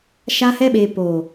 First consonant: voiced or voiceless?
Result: voiceless